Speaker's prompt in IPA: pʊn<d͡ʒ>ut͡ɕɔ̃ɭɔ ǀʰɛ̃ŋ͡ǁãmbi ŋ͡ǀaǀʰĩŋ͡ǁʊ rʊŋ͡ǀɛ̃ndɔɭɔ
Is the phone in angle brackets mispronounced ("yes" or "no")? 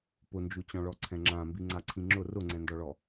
no